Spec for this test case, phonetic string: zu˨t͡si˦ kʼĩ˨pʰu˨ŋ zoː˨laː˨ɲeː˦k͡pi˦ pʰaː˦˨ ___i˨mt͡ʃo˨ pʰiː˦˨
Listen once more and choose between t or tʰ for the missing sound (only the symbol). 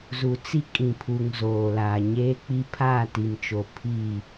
t